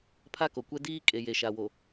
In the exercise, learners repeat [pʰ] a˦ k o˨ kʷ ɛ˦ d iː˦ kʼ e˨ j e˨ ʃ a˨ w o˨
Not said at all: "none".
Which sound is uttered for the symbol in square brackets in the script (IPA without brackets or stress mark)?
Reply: pʰ